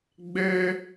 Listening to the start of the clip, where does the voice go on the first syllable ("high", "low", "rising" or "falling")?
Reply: high